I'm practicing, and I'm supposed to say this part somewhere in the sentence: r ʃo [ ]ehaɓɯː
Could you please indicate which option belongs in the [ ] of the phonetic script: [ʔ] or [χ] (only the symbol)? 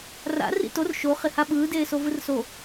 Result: χ